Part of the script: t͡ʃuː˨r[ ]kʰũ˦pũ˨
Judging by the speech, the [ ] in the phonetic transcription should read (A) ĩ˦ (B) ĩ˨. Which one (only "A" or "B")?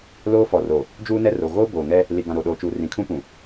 B